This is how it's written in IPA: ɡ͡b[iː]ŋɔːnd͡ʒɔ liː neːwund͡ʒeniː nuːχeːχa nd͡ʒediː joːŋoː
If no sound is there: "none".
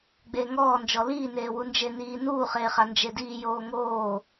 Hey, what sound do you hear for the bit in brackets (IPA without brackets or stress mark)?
eː